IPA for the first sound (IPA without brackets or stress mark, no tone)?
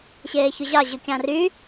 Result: ɕ